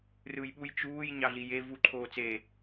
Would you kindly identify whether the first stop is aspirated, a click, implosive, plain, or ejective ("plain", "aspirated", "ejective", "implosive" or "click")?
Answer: implosive